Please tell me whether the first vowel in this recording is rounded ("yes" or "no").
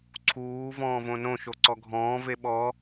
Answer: yes